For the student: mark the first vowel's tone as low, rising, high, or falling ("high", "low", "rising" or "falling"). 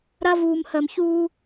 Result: high